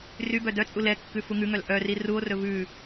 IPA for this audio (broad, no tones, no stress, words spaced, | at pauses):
rybœ dœt͡sʼu lɛkːʉ fuŋʉŋœl ʔœri ruo̯rɵ vʉ